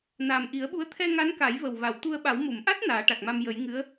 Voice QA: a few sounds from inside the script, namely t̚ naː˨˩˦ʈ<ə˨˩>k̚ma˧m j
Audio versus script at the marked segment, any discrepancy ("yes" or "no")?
yes